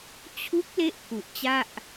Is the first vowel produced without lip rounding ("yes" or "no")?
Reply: no